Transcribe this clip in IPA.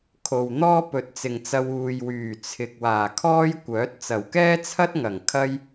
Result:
kʰ o˨ w n̪ ɔː˥ p ɵ˨˥ t̚ t͡s ɪ˨ ŋ t͡s ɐ˧ w uː˨ j w yː˨˩ t͡sʰ ɪ˨ k̚ w aː˨˩ kʰ ɔː˥ j kʷ œː˨˥ t̚ t͡s ɐ˨˩ w k ɛː˥ t͡sʰ ɐ˥ t̚ ŋ ɐ˨˩ ŋ kʰ ɐ˥ j

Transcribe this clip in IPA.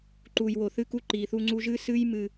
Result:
ǃ u˨ j w o˨ θ ɨ˦˨ k u˦ ǃ i˨ θ u˦ ŋ͡ǀ u˦ ʒ ɨ˦ s ɨ˦ j m ɨ˦

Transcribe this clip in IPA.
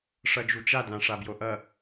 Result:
ʂ ʌ d͡ʒ u t͡ʃ a d l ã ʂ a b j o ʔ ʌ

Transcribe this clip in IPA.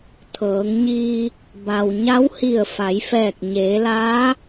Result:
t̪ʰ ɤː˩˧ ŋ ɲ iː˧ | b a˩ w ɲ a˧˥ w h i˧˩ ə̯ f a˩˧ j f ɛː˧˩ k̚ ɲ eː˩˧ l aː˧˥

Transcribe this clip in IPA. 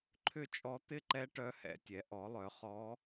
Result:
ǃʰ ʏ˥˩ t͡ʃʼ ɔ˧˥ t̪ ɪ˥˩ ǃ ɛ˧˥ ʈ œ˧˥ h ɛ̰˩˥ tʲ ɛ˩˥ ʔ ɔ˩˥ lˠ œ˩˥ χ ɔ˧˥

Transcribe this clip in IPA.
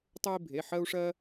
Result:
tˤ o˦ i̯ bʱ e˩˧˩ ħ ɜ˦ u̯ ʂ ɜ˦

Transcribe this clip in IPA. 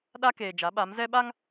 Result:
ɗ a˦ k eː˨ d͡ʒ a˨˦ ɓ a˨˦ m z ɛ˦ ɓ a˦ ŋ

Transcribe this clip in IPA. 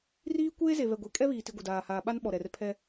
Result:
r iː˦ kʷ eː˦ z e˨ β ɛ˨ ɡʷ e˨ kʼ ɛ˦ β iː˨ t i˨ ɡʷ e˨ d aː˨ h aː˨ ɓ a˦ n ɓ ɔ˨ ɾ ɛ˨ r pʰ ɛ˦

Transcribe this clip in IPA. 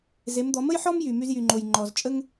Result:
z e˩˧ m d̪ ɔ˩˧ m ə˥ j ħ ɔ˥ m j y˩ m y˧ z j y˩ ŋ͡ǃ o˩ j ŋ͡ǃ ɔ˩ z t͡ʃʼ ə˥ ŋ

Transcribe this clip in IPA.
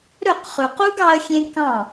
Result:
ɾ ɵ˦˨ q χ ʉ˨ q u˦ ɡ ɑ˦ ə̯ xʲ ẽ˦ k ɑ̃˦˨

